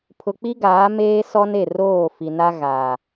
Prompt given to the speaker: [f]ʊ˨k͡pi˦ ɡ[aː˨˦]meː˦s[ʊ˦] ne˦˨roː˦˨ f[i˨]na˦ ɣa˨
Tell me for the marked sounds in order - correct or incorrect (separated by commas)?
incorrect, correct, incorrect, correct